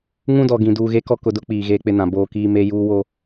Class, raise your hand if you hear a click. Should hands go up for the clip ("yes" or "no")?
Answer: no